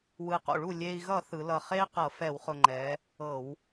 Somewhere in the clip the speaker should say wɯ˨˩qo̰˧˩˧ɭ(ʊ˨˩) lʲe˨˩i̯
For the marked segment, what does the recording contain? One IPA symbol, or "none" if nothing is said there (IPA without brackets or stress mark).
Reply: u˨˩